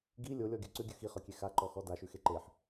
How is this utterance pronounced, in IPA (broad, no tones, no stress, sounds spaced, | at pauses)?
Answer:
ɡ i lʲ o lʲ ɔ ɡʲ ʉ ǀ ʉ ɡʲ ʉ x i χ ɵ kʲ e x a ǃ ɔ x ɔ d a ʃ ʉ x e ǃ e ħ